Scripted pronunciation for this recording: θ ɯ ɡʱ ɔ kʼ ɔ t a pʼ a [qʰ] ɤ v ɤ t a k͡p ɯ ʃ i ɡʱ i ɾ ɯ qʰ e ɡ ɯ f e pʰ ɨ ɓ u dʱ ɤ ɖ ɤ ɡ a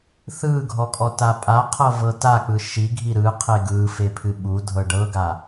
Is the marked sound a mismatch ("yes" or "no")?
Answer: no